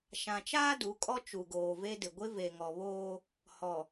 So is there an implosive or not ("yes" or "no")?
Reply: no